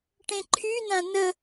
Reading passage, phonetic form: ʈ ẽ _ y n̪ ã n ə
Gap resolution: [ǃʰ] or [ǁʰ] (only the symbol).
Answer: ǃʰ